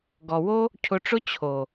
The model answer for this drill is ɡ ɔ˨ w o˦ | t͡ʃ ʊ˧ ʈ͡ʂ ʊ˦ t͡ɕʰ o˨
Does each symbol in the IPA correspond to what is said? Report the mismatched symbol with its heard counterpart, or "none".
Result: t͡ʃ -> cʰ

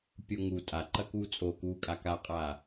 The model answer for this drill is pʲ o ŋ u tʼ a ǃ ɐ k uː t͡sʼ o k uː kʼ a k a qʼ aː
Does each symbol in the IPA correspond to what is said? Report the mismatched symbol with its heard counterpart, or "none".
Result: none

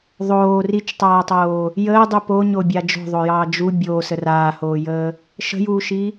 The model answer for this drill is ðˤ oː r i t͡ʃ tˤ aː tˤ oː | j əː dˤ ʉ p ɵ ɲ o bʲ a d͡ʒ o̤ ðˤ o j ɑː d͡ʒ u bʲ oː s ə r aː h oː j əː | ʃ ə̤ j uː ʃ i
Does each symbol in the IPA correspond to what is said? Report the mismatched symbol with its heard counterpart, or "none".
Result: ɵ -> o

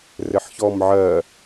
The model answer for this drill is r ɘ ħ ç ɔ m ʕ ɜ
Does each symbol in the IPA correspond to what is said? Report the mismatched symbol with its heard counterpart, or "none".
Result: none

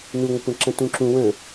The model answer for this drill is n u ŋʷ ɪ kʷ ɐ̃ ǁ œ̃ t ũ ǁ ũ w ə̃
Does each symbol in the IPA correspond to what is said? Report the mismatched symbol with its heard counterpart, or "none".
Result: œ̃ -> ə̃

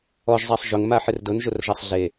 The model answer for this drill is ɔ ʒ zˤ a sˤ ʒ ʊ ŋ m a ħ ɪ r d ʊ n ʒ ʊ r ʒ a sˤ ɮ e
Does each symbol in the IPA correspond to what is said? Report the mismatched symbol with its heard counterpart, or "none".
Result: none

